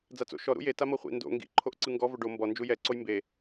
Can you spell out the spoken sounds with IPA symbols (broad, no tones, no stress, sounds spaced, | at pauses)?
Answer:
d͡z a t͡s o̰ ʃ ɔ ɾ ṵ j e t a m ɤ χʷ ḭ n d o̰ ŋ ɡ ḭ ǃʰ o ʔ ǀ ɯ ŋ ɡ ɔ v o ɖ o m b ɔ n d͡ʒ u j ɛ ǀ o j m b e